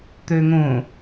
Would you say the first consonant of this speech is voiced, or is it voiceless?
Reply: voiceless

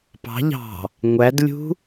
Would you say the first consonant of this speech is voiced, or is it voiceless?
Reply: voiceless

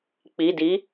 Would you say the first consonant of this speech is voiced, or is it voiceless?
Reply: voiceless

